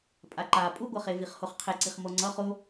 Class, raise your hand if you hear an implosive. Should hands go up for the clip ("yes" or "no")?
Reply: no